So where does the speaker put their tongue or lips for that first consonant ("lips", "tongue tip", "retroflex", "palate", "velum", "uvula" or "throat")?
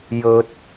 palate